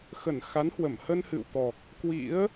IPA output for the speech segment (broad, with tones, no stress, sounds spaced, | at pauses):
x ə˧˩ n x a˨˦ n h w ə˧˩ m h ə˧ n h ɨ̰˧˨ w t̪ ɔ˨˩ k̚ | k w ḭ˧˥ ə̯